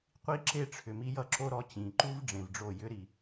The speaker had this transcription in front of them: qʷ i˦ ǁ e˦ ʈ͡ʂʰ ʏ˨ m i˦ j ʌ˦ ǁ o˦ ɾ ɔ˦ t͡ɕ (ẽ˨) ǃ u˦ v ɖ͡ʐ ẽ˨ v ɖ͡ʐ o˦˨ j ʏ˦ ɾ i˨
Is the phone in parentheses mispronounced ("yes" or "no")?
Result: yes